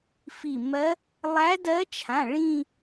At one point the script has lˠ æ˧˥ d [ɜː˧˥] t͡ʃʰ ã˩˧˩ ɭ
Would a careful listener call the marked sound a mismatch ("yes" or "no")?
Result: yes